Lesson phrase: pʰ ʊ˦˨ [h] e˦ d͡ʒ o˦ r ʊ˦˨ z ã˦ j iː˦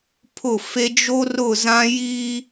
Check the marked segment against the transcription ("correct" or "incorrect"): incorrect